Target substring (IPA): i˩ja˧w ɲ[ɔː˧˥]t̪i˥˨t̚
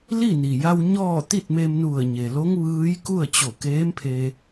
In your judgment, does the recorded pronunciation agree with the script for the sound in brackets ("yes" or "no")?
no